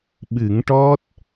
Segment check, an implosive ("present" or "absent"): present